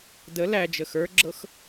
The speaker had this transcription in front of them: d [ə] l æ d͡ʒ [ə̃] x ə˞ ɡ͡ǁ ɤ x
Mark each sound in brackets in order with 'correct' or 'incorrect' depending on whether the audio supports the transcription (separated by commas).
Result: correct, incorrect